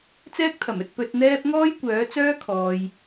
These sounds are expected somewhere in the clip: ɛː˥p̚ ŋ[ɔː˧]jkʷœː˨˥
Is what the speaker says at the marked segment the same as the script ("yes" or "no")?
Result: no